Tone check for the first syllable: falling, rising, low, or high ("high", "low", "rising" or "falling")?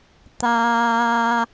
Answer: low